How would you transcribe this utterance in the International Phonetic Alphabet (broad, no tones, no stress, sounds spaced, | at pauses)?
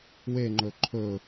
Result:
w e ŋ͡ǃ ɵ ǃʰ ɵ